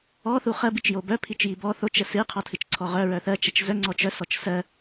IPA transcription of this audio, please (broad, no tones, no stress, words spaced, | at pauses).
ɔ θuχɜ bit͡ʃjobœ pʰit͡ʃjibɔ θot͡ʃ əsɨ qʰɔtʰɨt͡ʃǀʰɔʁœ ɹœθɜ t͡ʃət͡ʃzœ ŋ͡ǀɔt͡ʃœ sɔt͡ʃsɜ